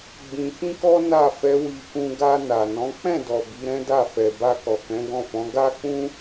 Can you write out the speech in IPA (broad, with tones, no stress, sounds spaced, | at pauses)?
ɡ͡b ĩ˧ f ĩ˦ k ɔ˦ n a˦˨ f ɛ˨˦ w i˧ k ũ˧ ɡ a˧ n a˨ n ɔ̃˨˦ k͡p ɛ̃˦˨ d ɔ˨ b i˨˦ ɾ ɛ̃˦ d a˦˨ f ɛ˨ b a˧ k ɔ˨ k ɛ̃˨˦ ɡ ɔ̃˦˨ f ɔ̃˨˦ ɡ a˦ k͡p ũ˦